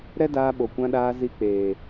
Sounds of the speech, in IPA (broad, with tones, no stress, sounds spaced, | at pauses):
ɾ ɛ˦ d aː˧ ɓ o˨ kʷ ã˧ ɗ aː˧ z i˧ k͡p eː˨